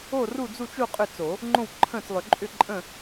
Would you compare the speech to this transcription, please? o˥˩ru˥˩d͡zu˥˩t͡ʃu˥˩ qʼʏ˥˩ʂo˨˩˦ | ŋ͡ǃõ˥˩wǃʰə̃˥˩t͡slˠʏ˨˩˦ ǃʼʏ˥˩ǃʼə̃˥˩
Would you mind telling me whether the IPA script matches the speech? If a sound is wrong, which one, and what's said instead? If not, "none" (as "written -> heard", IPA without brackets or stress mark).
ʂ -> t͡s